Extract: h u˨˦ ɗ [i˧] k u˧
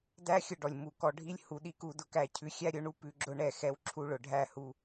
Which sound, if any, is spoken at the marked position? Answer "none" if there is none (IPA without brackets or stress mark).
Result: i˧